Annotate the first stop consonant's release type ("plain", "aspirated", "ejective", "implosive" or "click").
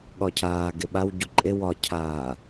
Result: implosive